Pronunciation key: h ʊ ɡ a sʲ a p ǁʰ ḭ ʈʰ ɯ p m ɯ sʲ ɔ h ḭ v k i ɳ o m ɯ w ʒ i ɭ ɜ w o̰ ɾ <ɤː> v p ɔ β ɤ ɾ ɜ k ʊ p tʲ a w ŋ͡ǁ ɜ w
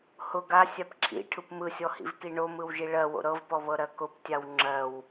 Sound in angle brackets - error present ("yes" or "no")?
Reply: yes